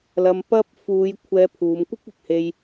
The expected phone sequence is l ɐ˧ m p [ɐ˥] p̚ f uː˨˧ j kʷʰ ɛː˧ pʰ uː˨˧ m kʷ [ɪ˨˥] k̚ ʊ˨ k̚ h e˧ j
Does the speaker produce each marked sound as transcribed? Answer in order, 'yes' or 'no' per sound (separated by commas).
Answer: yes, no